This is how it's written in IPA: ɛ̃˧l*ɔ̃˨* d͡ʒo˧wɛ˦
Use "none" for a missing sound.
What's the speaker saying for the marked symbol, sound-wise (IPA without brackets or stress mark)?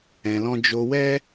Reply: ɔ̃˦